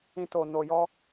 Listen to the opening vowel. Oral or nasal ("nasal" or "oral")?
nasal